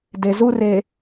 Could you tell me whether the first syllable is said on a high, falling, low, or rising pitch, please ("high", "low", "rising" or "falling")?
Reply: low